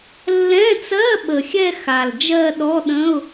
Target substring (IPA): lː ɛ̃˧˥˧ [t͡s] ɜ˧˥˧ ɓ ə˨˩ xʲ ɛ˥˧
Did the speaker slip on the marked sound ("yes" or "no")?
no